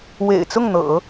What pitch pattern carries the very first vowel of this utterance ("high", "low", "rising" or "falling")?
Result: low